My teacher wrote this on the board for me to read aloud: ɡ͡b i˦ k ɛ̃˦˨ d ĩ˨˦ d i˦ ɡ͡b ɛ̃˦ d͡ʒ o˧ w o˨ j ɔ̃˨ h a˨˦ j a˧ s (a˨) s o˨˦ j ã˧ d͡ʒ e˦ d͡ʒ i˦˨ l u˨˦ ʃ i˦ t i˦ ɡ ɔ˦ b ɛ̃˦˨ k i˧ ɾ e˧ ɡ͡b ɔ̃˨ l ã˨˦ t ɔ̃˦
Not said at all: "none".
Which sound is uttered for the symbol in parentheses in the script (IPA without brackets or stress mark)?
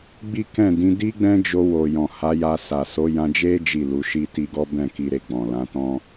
a˨